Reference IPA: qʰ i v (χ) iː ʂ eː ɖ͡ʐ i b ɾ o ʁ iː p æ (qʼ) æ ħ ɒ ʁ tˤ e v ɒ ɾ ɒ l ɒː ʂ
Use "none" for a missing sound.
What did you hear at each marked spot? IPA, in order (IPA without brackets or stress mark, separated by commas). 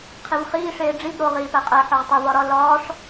χ, qʼ